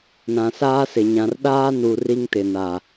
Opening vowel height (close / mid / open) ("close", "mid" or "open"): open